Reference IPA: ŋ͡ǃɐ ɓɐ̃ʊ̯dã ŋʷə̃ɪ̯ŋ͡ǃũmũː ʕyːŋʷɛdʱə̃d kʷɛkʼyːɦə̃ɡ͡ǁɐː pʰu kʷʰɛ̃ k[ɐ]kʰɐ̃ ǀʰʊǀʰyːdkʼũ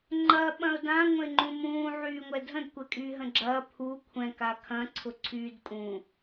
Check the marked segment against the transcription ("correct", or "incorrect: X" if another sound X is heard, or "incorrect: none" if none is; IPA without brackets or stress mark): incorrect: a